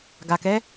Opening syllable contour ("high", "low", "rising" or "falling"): low